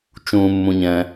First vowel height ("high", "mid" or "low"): high